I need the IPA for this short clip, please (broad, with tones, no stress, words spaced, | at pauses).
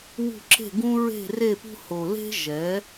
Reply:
wṳ˦˨ ǁe̤˦˨ɡũ˦ ɹe̤˦˨re˦˨pṳ˦ ho˨le̤˦ ʒɛ˨˥